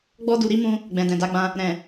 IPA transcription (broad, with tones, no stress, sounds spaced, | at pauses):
ɡ͡b ɔ˦ d u˧ ɾ i˦ m ũ˧ | ɡ͡b ɛ̃˨ d ɛ̃˨ d a˨˦ ɡ͡b ã˧ | ɾ ɛ̃˨